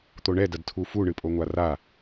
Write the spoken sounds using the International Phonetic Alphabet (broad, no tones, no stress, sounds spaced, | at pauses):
t̪ o ɳ ɛ d ɐ d tʰ u f u ɳ ɨ pʼ o ŋʷ a r a